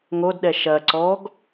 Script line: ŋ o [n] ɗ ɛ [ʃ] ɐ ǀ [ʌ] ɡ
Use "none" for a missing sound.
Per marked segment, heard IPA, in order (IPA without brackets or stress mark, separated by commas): d, ʃ, ɔ